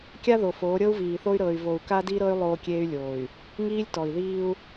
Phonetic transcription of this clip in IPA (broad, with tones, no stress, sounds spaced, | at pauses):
kʲ a˦ ð o˨ f oː˨˦ ɾʲ ɤ˦ u̯ v iː˨ θ o˦ y̯ ɾ ɤ˨ y̯ v o˨ u̯ k a˦ d i˦ ɾ ɤ˦ y̯ lˠ oː˦ kʲ eː˦ y̯ lʲ oː˨ y̯ | ŋ iː˦ lʲ t ɔ˨ i̯ ð iː˦ u̯